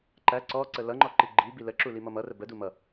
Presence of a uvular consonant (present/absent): absent